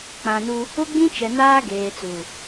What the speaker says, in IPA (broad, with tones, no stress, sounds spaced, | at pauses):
k͡p ã˨ n u˦ | ʊ˦ ɡ͡b ĩ˦ t͡ʃ ɛ˨ n aː˦ ɡ eː˨ t͡s u˨